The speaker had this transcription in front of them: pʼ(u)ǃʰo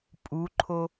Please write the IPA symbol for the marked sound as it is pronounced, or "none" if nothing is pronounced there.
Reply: u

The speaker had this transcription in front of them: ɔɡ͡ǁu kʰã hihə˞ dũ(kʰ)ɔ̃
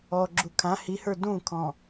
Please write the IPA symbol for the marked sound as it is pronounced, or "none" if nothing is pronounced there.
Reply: kʰ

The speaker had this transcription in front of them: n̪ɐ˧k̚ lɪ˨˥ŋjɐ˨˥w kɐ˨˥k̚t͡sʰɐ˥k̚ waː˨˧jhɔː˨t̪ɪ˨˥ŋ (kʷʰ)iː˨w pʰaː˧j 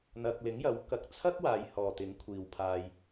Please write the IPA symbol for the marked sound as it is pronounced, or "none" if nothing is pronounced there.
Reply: kʷʰ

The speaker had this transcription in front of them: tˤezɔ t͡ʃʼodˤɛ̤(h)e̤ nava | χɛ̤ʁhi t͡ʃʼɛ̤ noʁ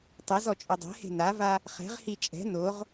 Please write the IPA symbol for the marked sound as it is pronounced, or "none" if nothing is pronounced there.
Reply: h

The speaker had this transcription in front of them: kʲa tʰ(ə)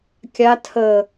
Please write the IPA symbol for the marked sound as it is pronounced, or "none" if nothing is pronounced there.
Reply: ə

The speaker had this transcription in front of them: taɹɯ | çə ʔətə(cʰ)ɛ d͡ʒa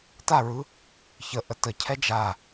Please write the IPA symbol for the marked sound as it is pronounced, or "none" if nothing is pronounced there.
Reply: cʰ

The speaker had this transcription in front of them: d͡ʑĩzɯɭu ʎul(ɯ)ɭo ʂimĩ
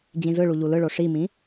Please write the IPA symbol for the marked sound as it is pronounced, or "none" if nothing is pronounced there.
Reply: ɯ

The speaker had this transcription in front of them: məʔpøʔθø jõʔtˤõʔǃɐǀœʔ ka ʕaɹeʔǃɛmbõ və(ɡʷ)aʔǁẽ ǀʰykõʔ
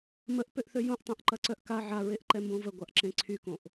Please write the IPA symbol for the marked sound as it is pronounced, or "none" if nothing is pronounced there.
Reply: ɡʷ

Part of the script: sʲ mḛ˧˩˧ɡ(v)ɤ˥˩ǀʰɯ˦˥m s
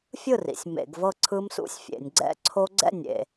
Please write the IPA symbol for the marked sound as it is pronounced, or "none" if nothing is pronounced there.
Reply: v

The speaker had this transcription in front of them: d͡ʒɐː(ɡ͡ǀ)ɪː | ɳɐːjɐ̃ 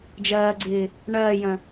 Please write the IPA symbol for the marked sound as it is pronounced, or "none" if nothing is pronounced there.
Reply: ɡ͡ǀ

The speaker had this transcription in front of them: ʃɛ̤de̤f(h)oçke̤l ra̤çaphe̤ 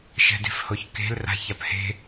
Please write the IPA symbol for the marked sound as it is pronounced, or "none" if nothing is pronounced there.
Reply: h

